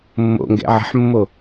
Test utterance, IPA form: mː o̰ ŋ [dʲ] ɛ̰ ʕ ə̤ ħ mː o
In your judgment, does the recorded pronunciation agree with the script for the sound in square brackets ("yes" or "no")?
no